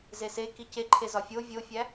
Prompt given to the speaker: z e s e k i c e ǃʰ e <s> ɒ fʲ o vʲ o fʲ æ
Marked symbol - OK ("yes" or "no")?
no